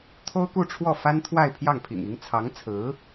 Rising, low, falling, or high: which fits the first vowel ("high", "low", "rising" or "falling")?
high